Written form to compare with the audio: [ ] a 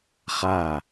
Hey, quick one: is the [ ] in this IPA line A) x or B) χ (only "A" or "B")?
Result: B